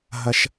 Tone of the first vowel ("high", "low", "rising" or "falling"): high